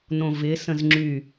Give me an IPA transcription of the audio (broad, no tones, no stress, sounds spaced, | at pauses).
n õ v ɪ s ə̃ z ŋ͡ǁ y